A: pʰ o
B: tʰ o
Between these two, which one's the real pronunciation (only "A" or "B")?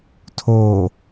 B